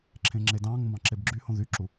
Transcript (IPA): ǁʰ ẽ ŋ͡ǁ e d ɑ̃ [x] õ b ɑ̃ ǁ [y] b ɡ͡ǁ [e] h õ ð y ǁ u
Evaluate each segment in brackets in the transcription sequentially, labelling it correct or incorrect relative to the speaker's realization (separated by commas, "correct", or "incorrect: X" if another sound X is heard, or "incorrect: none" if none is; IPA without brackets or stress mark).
incorrect: ŋ, incorrect: e, incorrect: y